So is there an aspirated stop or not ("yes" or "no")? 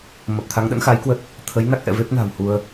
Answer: yes